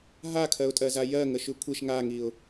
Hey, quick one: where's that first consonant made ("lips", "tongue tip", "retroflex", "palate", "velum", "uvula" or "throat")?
throat